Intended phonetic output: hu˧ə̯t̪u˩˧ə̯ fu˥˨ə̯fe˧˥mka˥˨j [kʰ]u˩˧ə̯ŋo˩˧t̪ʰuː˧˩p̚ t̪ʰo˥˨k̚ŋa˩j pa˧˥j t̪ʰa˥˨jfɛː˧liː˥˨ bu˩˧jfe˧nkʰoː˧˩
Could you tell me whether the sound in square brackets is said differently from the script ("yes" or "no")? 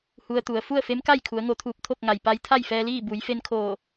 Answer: no